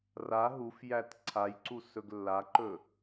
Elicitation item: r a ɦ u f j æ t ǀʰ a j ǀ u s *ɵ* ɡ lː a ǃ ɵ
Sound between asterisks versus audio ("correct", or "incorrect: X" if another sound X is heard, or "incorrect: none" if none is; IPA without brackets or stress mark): correct